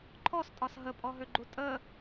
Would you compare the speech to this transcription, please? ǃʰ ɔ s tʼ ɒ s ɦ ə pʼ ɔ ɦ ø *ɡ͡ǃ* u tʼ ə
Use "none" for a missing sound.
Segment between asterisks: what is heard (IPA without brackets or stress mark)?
ɡ͡ǃ